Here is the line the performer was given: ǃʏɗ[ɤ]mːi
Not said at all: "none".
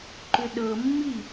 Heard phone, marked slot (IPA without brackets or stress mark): ɤ